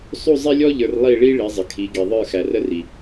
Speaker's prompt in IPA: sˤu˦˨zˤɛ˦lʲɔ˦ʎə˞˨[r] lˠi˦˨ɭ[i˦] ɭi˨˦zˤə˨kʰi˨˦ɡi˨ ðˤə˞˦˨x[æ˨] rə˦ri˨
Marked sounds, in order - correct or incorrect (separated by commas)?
correct, correct, correct